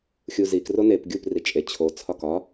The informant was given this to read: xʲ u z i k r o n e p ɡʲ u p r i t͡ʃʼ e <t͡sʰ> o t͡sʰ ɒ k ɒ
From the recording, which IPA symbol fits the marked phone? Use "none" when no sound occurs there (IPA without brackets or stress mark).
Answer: t͡ɕʰ